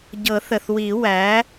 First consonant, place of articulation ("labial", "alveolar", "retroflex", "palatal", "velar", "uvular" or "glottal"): palatal